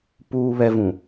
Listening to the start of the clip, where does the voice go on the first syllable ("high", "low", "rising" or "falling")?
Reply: low